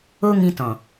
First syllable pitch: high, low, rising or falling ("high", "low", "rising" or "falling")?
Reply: high